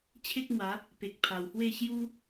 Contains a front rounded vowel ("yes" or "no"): no